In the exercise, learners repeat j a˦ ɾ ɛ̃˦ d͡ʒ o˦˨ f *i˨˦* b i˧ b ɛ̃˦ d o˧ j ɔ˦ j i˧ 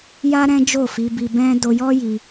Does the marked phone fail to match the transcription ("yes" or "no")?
no